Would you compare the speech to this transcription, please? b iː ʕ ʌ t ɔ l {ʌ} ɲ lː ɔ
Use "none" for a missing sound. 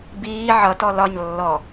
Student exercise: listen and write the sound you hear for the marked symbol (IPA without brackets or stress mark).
ɒ